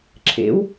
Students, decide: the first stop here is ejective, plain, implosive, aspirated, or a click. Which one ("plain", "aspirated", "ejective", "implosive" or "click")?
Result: click